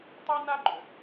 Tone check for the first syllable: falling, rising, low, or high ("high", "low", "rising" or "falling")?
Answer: high